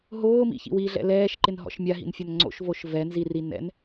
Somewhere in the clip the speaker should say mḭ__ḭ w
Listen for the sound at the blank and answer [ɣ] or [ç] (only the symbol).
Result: ç